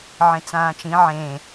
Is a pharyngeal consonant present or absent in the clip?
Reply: present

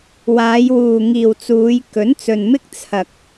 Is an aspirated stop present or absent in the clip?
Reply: present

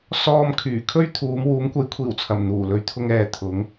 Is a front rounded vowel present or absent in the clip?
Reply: present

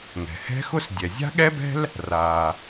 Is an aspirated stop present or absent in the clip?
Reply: absent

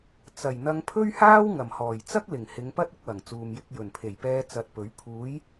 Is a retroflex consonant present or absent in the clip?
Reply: absent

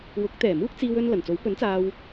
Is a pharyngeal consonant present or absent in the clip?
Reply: absent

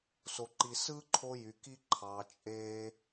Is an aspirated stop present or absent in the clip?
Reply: present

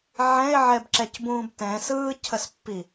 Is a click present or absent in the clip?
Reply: present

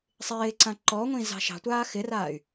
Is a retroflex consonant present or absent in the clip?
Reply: absent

